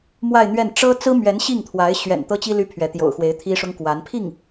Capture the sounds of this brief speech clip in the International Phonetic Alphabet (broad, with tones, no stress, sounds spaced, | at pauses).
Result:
m w a˥˧ ɪ̯ n̪ ɥ ɛ˥˩ n ʈ͡ʂ ɤ˥ t͡s ɹ̩˥ m ɥ ɛ˧˥ n ɕ i˥˩ ŋ t̪ʰ w a˧˥ ɪ̯ ɕ ɥ ɛ̰˨˩ n t̪ ɤ˥ t͡ɕ i˥ l y˥ pʰ ɥ ɛ˧˥ t̪ j o̰˨˩ ʊ̯ x w e˧˥ ɪ̯ t̪ʰ i˥ ʂ ʊ˥ ŋ k w a˧˥ n pʰ i˥˩ ŋ